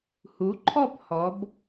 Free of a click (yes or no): no